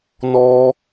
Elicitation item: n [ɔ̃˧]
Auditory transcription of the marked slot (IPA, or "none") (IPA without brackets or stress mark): ɔ˧